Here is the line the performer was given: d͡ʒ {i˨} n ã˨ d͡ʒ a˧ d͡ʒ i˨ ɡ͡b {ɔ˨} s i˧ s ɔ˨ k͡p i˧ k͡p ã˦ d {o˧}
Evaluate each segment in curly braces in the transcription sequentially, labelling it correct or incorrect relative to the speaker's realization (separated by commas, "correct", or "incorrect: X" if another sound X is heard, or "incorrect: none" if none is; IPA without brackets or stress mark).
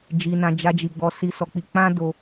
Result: correct, correct, correct